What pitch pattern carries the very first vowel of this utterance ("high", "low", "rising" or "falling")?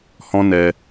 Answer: high